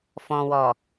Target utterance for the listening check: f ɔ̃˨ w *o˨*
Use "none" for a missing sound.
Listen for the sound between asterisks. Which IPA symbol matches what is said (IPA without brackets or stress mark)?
ɔ˨